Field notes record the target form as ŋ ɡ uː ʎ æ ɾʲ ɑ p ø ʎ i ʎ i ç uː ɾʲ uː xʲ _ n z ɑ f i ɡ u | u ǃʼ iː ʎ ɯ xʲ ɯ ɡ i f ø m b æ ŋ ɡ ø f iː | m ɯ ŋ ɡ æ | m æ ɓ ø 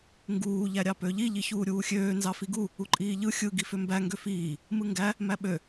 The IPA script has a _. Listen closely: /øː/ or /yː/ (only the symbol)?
øː